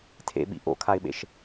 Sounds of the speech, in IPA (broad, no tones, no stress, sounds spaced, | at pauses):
tʰ ḛ ɓ ḭ ʔ o̰ kʰ a ɪ̯ ɓ ḛ ʃ